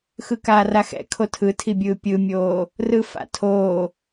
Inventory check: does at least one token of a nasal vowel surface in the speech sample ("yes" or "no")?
no